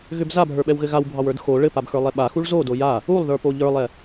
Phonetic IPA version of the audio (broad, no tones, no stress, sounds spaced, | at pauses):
ɣ ʏ b z a bʱ ə˞ ɓ ɛ w ɣ ɘ ɣ a w bʱ ɑ w ə˞ d x o ɭ ɘ p a b x ə˞ lˠ ɛ ɓ a x u ɭ z o d o j a | u lˠ ð ə˞ p o ʎ ə˞ lˠ ɛ